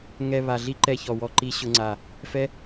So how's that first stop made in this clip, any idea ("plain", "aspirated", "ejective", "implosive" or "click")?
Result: click